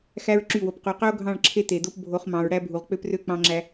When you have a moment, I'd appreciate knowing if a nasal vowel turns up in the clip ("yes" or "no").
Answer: yes